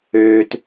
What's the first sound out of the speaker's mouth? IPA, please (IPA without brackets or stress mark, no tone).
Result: øː